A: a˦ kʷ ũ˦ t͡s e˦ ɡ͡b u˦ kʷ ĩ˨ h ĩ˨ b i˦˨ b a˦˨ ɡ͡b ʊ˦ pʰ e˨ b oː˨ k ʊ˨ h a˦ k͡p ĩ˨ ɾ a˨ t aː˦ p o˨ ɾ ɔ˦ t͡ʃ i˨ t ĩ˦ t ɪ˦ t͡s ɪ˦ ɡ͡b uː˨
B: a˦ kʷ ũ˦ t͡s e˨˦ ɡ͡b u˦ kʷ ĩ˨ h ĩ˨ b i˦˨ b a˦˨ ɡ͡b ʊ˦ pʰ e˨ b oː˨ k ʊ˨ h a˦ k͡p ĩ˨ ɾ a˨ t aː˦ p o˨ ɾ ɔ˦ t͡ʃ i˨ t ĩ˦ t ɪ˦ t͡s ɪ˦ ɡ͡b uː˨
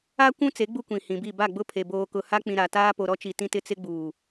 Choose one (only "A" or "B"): B